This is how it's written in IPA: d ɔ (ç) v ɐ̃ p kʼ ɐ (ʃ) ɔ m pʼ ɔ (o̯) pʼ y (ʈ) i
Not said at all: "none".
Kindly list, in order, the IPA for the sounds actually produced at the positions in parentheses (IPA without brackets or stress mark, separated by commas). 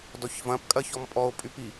ç, ç, o̯, p